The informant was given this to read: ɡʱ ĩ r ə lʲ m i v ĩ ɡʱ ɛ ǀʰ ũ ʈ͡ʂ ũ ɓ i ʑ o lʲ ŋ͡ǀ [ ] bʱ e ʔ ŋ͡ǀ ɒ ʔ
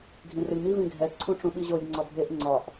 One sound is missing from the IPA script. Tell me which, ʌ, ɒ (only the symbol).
ɒ